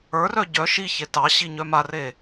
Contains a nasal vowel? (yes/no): no